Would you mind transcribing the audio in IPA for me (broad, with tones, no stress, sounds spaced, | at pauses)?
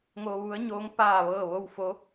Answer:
ŋ o˧ ʋ u˧˥ ə̯ ɲ oː˧˥ ŋ p aː˥˨ ʋ ɤː˥˨ ʋ o˥˨ w f o˧˥